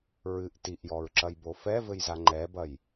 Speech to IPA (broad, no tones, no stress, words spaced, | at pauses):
ɹɨʔ tiʔjɔɹǁɐjbo fɛvɘjza ŋ͡ǃɛbɐj